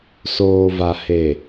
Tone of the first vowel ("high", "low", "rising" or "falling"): low